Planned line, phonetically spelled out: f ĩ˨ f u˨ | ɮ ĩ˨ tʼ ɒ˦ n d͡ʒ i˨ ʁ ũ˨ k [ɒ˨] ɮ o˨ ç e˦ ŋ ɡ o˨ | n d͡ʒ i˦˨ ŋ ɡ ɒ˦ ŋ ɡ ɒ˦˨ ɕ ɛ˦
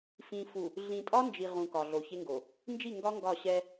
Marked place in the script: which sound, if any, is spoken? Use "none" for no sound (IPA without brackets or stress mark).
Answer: ɒ˨